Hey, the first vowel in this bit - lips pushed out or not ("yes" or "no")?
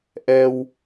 no